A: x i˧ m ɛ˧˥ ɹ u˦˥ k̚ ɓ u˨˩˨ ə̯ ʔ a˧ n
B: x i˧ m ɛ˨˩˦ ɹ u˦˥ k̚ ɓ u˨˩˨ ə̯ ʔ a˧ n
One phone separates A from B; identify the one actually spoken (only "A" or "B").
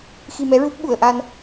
A